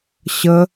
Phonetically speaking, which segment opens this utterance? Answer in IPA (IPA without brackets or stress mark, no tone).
ɕ